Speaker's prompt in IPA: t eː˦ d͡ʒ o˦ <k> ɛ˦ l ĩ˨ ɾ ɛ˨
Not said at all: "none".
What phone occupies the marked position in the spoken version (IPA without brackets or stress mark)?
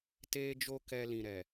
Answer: k